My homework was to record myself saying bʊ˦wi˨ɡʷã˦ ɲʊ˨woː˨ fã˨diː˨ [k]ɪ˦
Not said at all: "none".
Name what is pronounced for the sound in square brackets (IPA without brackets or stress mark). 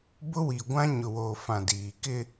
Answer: k